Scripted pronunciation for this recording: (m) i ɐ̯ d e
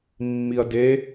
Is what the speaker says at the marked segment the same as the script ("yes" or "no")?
no